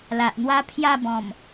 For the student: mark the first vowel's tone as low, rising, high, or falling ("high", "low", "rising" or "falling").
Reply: low